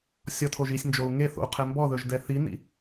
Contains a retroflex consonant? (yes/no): no